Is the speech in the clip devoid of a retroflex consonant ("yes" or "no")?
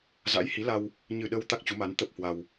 yes